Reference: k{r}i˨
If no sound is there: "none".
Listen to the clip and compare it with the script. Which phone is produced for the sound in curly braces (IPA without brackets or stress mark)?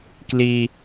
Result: l